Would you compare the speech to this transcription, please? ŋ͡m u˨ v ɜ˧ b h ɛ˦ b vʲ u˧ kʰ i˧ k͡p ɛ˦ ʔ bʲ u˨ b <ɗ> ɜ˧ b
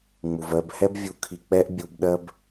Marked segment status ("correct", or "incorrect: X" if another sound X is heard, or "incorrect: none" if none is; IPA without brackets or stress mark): correct